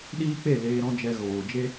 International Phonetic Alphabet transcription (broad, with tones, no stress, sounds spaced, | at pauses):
ɗ iː˦ k͡p e˦˨ l eː˧ ɾ ɔ̃˦ d͡ʒ ɛ˧ ɣ oː˨ d͡ʒ e˦